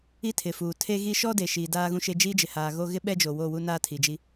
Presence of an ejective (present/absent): absent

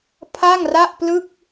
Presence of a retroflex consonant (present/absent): absent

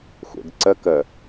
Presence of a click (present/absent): present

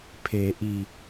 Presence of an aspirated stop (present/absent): present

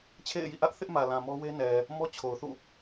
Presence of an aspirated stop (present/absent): present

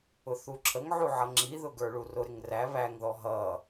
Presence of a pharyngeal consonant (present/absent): present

